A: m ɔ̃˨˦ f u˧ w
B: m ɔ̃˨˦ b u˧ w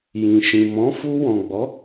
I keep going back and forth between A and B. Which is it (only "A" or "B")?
A